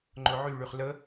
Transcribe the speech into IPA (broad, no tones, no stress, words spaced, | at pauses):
ŋ͡ǃʊʕy ɭyχlə